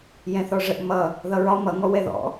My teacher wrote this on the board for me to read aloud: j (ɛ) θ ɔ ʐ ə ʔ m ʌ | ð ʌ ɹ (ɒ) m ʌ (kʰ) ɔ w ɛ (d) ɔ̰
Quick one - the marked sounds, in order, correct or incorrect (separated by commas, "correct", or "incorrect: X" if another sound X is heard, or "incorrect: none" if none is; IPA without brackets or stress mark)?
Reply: incorrect: ɛ̃, correct, incorrect: ŋ, incorrect: ð